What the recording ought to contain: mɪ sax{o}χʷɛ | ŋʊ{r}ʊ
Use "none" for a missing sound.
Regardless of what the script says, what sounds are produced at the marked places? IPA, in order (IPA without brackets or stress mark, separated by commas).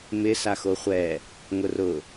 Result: o, r